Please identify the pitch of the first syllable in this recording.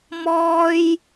high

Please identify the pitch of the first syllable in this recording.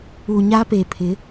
low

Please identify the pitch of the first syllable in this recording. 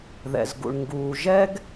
low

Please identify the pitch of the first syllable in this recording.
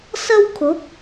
high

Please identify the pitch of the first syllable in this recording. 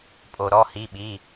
low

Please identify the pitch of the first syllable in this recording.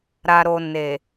low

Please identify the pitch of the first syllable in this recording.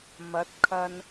rising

